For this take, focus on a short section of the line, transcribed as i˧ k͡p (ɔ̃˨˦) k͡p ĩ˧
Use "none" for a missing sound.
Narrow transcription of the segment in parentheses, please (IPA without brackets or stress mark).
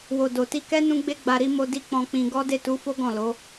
ɔ̃˧